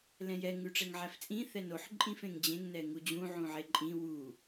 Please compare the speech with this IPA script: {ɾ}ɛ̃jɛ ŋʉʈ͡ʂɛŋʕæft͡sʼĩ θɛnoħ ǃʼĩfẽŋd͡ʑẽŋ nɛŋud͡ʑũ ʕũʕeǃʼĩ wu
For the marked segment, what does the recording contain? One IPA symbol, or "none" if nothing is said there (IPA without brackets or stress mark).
l